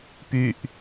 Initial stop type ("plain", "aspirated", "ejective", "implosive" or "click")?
plain